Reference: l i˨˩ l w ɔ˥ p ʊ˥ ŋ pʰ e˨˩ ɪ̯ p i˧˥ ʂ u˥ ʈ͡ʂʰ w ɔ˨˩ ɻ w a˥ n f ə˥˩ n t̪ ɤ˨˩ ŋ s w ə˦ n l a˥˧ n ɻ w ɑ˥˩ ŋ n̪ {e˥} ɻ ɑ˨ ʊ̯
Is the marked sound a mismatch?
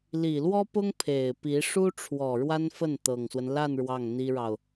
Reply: yes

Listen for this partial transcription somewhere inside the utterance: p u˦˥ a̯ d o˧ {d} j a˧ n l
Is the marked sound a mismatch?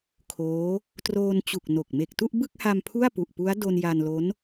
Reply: yes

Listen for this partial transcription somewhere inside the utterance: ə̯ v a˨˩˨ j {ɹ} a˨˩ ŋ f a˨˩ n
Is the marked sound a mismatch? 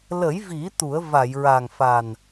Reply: no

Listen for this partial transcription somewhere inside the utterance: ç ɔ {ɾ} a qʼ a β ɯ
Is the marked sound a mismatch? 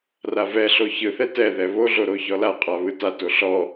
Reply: yes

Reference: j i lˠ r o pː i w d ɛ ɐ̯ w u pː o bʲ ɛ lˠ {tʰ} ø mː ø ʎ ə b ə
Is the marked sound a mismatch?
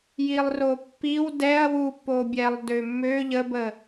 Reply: yes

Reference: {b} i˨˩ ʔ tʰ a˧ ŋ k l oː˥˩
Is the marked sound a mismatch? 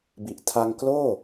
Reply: no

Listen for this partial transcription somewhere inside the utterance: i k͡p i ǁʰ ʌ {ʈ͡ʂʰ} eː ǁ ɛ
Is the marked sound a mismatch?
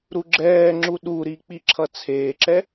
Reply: yes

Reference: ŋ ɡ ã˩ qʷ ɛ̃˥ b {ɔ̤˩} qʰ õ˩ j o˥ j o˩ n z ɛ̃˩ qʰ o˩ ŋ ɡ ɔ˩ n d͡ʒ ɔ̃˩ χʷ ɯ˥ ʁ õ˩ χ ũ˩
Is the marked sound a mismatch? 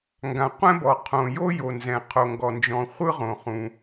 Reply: yes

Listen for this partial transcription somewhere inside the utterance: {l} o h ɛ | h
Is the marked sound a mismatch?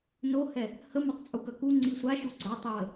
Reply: yes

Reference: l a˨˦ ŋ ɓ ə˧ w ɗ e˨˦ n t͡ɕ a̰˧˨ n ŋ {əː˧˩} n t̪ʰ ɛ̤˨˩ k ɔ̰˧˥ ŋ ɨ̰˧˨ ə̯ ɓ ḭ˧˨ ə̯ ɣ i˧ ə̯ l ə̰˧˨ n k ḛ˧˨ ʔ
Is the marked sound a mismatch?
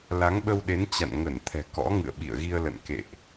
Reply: yes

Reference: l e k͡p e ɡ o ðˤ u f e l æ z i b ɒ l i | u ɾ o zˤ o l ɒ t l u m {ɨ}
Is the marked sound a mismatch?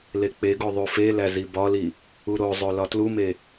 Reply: yes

